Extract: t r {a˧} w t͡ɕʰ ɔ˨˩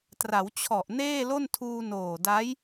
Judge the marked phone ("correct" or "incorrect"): incorrect